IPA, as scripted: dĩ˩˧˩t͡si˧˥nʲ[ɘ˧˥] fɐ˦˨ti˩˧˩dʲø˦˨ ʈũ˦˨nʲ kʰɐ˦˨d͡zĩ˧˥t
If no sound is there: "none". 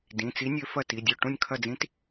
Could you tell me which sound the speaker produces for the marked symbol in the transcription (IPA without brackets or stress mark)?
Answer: ø˧˥